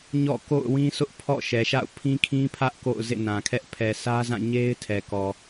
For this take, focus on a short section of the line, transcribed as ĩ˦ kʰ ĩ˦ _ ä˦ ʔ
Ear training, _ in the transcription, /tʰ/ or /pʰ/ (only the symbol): pʰ